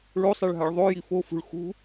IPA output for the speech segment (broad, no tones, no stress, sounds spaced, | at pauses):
ɭ o sˤ ɛ ɭ ɦ a ɭ ðˤ o j i f o f ṳ ɭ x ṳ